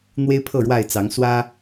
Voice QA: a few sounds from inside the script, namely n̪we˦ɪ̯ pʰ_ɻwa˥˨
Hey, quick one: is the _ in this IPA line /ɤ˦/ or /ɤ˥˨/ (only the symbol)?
ɤ˥˨